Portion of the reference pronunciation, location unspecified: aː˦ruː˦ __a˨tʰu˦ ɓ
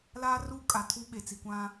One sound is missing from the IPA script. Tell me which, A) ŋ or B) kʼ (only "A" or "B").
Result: B